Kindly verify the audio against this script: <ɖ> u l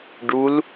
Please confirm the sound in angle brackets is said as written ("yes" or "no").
yes